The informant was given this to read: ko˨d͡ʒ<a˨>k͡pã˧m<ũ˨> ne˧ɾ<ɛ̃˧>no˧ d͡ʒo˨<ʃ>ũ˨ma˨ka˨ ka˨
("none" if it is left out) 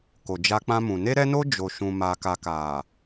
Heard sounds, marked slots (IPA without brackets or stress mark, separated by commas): a˧, ũ˨, ɛ˧, ʃ